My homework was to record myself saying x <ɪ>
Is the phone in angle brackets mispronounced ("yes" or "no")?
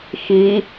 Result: yes